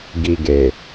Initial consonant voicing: voiced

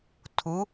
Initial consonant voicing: voiceless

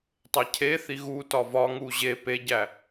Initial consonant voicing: voiceless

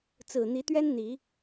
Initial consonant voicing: voiceless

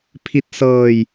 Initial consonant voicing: voiceless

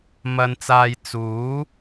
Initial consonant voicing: voiced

